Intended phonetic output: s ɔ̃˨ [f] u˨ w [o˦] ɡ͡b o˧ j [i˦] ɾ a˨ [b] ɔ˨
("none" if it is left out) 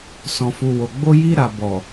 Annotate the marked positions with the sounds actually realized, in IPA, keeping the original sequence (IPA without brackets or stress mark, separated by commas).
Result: f, o˨, i˧, b